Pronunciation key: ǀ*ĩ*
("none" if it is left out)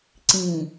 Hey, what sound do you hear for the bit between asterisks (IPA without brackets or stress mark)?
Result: ĩ